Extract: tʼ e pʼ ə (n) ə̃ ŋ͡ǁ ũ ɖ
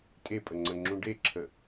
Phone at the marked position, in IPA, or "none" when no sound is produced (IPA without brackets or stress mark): ŋ͡ǀ